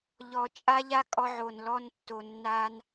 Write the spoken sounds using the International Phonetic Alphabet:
ʎɔ˧ t͡ʃʼa˦ʎa˦kʼɔ˧ʕo˨n lɔ˧n tːo˨nːa˧n

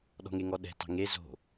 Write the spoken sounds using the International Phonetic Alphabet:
ɗɔ̤ŋeŋɔɗɛ̤ tɑ̤ŋe zo̤

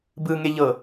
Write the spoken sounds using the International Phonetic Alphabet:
bɯŋeʎɤ

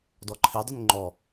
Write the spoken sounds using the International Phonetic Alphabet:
dɔǃʰe dˤunŋ͡ǃɔ

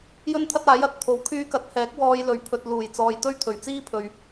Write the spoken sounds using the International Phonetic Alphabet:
jɵ˥nt̪ʰɐ˥t̚aː˨˥j ɐ˨t̚ t̪ʰo˨˥wkʰyː˧kɐ˨˥t̚hɛː˨˥k̚ wɔː˧jlɵ˨ɥ pʰɵ˨t̚ luː˨˩jt͡sɔː˨jt̪ɵ˥ɥt̪ʰɵ˨˩ɥ t͡siː˥pʰɵ˨ɥ

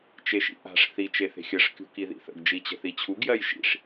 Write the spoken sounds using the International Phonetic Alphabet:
t͡ʃeʃḭʔa̤ʂ θi t͡ʃeθe̤xʲəʂ kʲṳkiðḭθə̰ɡ d͡ʒit͡ɕə̤θit͡ɕʰuɡ jɜjʃḭʂ

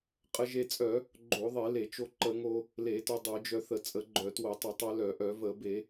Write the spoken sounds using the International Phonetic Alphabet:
qʼə˧ʒe˧t͡sʼœ˧˩˧ | ɡ͡ǃo˧˩˧ðˤe˧˩˧le˧˩˧t͡ʃo˧ ǃə˧˩˧ŋo˧ | le˧˩˧tœ˧ dˤœ˧˩˧d͡ʒœ˧θə˧˩˧ t͡sʼə˧˩˧ɡ͡ǃœ˧˩˧two˧˩˧ tˤə˧˩˧tˤœ˧lœ˧˩˧ ʔœ˧˩˧və˧˩˧be˧˩˧

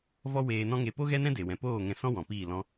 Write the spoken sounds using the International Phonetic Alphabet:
vɔ˦weː˧nɔ̃˦ŋe˧ po˦ɣɛ˦nɛ̃˦ de˨wɛ̃˨poː˦˨ ŋɛ̃˧sɔ̃˦ wɔ̃˨piː˦˨lɔ̃˦

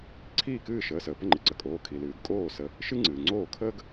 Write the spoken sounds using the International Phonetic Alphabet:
ǀʰiː˥˩kɨː˥˩ ʃəː˩˧˩səː˩ pə˥˩ŋ͡ǃɨ˩ǀə˩˧˩kʼoː˩˧˩ kʰi˩lɨː˩ɡ kʼoː˥˩ sə˨˦ | ʃɨ˥ŋ͡ǀɨː˩ŋ͡ǀoː˥˩ kʰəː˥ɡ

